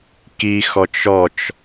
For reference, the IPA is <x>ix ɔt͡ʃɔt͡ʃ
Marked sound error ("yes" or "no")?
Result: yes